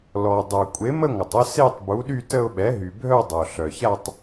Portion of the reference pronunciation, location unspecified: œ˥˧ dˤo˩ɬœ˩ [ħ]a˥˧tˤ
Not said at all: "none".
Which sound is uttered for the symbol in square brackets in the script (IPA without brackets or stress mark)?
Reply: ç